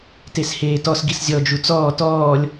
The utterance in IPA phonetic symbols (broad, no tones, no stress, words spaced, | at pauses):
tesheːtɔs ɡiszʲɔ d͡ʒut͡sɔː tɔːlʲ